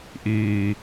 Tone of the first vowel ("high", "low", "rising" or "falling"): low